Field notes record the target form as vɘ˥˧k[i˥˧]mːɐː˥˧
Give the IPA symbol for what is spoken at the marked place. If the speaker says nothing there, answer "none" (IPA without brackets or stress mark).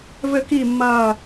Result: i˥˧